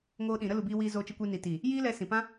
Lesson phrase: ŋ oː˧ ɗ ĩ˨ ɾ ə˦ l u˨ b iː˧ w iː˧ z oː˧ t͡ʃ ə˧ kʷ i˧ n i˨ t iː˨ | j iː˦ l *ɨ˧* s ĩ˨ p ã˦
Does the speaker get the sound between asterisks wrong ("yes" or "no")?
yes